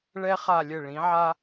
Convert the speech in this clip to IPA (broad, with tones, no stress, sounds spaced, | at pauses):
ɭ ɛ˧ χ a˧˩ lʲ ɘ˧˩ ɭ ĩ˩˧ ʕ a˧